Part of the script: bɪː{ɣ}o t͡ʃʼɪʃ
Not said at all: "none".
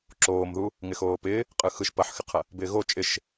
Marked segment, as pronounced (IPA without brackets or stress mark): ɣ